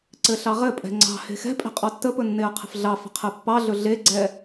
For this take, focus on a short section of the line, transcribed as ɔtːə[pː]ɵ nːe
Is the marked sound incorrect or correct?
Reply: incorrect